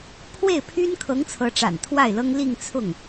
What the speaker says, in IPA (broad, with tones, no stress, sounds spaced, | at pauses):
pʰ w e˥˩ ɪ̯ pʰ y˥ n kʰ ɤ˧˥ ŋ t͡sʰ ɤ˧˥ ʈ͡ʂ a̰˨˩ n t̪ʰ w a˥˩ ɪ̯ l ɤ˥ ŋ l i˥˧ ŋ t͡sʰ ʊ˥˩ ŋ